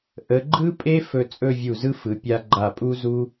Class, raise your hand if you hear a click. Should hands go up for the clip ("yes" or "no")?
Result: yes